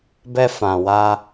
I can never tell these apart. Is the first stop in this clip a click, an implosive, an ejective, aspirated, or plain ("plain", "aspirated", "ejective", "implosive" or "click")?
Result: plain